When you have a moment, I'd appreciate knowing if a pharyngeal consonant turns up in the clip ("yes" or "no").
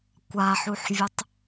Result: yes